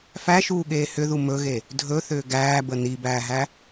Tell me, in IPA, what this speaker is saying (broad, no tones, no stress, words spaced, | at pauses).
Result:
fæʃuːɠeː hʏðu mɵɣe | dʱɵθʏː ɡæːbə nibæːɦæ